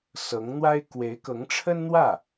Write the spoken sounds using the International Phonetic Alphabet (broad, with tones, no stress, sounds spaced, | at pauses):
s ɤ˧˥ ŋ n̪ w a˥ ɪ̯ k w e˧˥ ɪ̯ k ɤ˧˥ ŋ ʈ͡ʂʰ ə˥ n n̪ w ä˥˩